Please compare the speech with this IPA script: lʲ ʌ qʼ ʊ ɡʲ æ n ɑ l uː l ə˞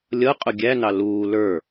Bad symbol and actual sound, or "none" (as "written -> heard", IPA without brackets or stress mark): none